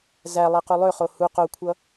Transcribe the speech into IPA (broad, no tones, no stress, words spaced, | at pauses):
zæ lˠequlˠøχo hu qokʷʰʌ